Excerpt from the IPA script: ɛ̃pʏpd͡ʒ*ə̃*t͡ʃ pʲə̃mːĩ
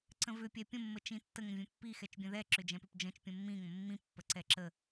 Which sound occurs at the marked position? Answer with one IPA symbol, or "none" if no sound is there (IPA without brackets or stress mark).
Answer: ə̃